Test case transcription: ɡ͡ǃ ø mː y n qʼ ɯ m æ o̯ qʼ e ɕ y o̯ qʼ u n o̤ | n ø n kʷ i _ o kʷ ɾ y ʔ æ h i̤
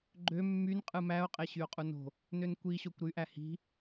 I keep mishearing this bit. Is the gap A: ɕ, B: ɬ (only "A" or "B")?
A